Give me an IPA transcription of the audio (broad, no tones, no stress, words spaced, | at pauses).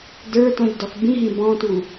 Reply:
də˞tɔ̃ʎdɔx bĩɦĩ bɔ̃tu